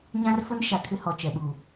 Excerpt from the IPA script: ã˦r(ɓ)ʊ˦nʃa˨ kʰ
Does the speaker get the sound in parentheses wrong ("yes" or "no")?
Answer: yes